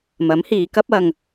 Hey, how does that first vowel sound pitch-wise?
rising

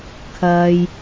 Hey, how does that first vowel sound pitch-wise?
low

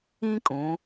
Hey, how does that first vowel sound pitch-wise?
high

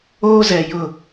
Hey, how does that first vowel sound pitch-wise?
high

